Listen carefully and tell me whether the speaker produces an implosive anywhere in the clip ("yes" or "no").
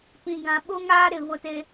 yes